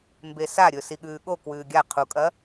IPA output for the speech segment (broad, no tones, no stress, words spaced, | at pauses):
mbesaɾʲɵ siɠʉːɠo kwʉːɡʲa qʰukʼɐ